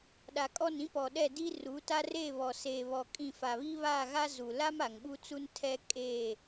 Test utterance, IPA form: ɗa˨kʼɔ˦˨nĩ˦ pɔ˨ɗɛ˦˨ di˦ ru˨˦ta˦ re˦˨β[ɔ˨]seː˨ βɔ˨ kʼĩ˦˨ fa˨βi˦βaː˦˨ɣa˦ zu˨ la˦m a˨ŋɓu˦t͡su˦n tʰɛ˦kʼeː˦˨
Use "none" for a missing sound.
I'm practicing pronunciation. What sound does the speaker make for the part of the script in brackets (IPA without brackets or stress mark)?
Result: ɔ˨